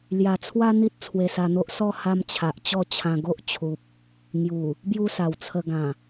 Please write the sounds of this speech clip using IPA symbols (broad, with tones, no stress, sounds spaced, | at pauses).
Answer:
l j a˨˩ t͡sʰ w a˦ n̪ i˦ t̚ t͡sʰ w e˧ s a˧ n̪ o˦ ʔ s ɔ˥˧ h a˦ m t͡ɕʰ a˨ ʔ t͡ɕ ɔ˥˧ t͡ɕʰ ã˧ ɡ o˦ ʔ t͡ɕʰ u˨ p̚ | ŋ j u˨˩ | b j u˦ s a˨˩ w t͡sʰ ə˧ ɡ ã˨˩